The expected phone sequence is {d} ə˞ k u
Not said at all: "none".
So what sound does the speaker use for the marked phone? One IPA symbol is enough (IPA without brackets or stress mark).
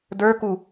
d